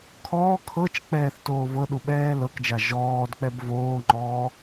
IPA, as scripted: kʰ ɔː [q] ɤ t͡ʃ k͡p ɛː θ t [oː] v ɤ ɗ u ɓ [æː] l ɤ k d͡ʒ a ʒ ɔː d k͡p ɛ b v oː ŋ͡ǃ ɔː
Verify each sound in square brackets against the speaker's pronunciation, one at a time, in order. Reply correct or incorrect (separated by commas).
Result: incorrect, correct, incorrect